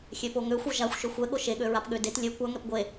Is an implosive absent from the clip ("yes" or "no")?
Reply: no